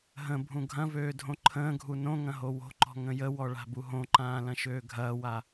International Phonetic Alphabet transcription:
ɦə̃ bʱũɡʱɐ̃vøː dʱõǃʰə̃ːɡʱu nõŋɐ̃ ɦowo̤ǃɔ̤ ŋə̃jəwɔ ɭa̤buɦõǃãː lɐ̃ʃøːɡʱɐːwa

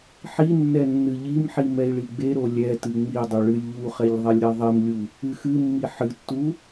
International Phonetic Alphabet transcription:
ħinːɛ nːɨʎimħi mɛi̯ɭiɡ͡beɾo lʲɛtɨ ŋ͡midˤu ɭɨlʲʎuχɛʎ ðˤelʲɾɛðˤimlʲu | ɨxɨmːi ħɨtːu

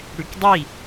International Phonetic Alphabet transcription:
ɽykdˤi

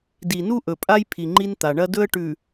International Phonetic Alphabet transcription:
di˨nu˦ʔɵ˨pʼa˦j pʰi˨ŋ͡ǃi˦nt̪a˨ ɳɐ˦dɵ˦ə̯ ʈʉ˨

